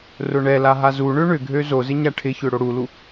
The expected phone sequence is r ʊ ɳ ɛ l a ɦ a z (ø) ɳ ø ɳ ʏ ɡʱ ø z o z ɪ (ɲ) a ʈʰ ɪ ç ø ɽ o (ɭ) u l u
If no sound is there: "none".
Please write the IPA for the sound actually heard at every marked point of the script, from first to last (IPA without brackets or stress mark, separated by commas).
u, ɲ, ɽ